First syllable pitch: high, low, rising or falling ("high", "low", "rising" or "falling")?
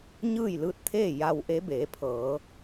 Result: falling